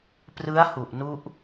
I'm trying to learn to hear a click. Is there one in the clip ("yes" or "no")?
no